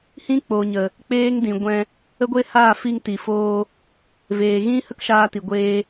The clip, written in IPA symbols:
h ĩ˦ k͡p o˨ ɲ ə˨ | k͡p eː˦ ŋ d ĩ˨ ɡʷ ɛ̃˧ | ə˦ ɡʷ e˦ h aː˦˨ f i˧ ŋ t i˨ f oː˧ | v eː˨ ɣ ĩ˦ h ə˦ k ʃ aː˧ t i˨ ɡʷ eː˧

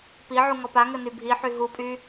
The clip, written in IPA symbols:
p i ʕ u ŋ ɔ p a ŋ ɘ n y bʱ i ħ y ɦ u pʼ y

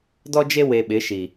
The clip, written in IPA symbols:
d ɔ˦ d͡ʒ e˦ w e˨ ɓ ɪ˨˦ ʃ i˨

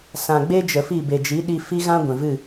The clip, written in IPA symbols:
s ã˨ ɡ͡b e˦ d͡ʒ ə˨ f i˦˨ b e˨ d͡ʒ i˨˦ ɗ i˧ f i˦ ɣ ã˦ ɡʷ ɛ̃˨ v ɨ˦˨

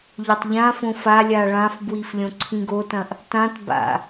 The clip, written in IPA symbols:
ʎ ɵ tˤ ʎ ã f õ f a lʲ a ɭ ã f b w i f lʲ õ ǀʰ ĩ ɡ o t ɐ̃ ʔ | t ã t b a̰

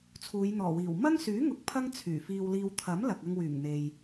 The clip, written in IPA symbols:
t͡sʰ uː˨˧ j n̪ ɔː˨˩ w iː˨˩ w m ɐ˥ ŋ s yː˨˥ ŋ ʊ˨˥ k̚ pʰ ɐ˥ ŋ t͡sʰ yː˨˩ f iː˧ w l iː˧ w t̪ʰ ɐ˨˥ m l ɐ˨ k̚ ɐ˧ ŋ w yː˨˩ ŋ n̪ e˨ j

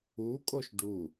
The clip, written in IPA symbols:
u kʼ o ʃ ɖ u

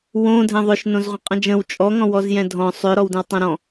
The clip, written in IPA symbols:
w õ dʱ ɛ̃ ðˤ ʏ ʃ n õ z ʁʷ ə̃ qʼ ə̃ d͡ʒ ə̃ w t͡ʃʼ ɔ ŋ ɔ̃ w ɔ z j ɛ̃ dʱ ɔ̃ sˤ ʏ ɾ ɔ w d ə̃ w tˤ õ ɾ ɔ̃

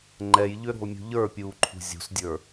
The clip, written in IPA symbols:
ŋ͡ǃ ɛ j ʎ ʏ ɾ ṳ lˠ mʲ ṳ ʎ ə˞ pʲ uː ǃʰ ṳ zʲ ṳ s dʲ ə˞

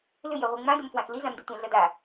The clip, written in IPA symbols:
l ʏ j œ ʁʷ i ŋ͡m ã d ʏ m f w ã x l i z ã m d i tʷ ã ɮ ʌ d a

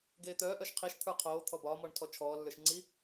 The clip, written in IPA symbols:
ɡ eː t̪ œː ʔ œ ʃ qʰ i ʃ t̪ʰ ə˞ qʰ oː t̪ʰ ɔ b ɒː m ɔ ɳ tʰ ɔ t͡ʃʰ ɔː lː ə˞ ʃ ŋ͡ǀ i

